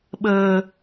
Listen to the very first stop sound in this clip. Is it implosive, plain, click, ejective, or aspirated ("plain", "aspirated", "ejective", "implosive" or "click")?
implosive